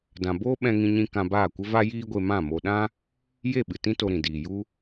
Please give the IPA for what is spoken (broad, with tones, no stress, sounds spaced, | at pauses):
d ã˧ b oː˦ ɓ ɛ̃˧ ŋ ĩ˧ ɲ ĩ˧ k ã˧ b aː˦˨ kʷ ə˦ v a˦ j iː˦ ɡʷ e˧ m ã˦˨ m o˧ ɗ ã˦ | j e˦˨ ɓ ɨ˨ t ĩ˦ t o˧ ɾ ĩ˨ d iː˨ j u˦